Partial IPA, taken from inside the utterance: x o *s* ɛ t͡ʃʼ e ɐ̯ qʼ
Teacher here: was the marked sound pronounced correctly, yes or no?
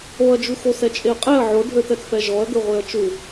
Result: yes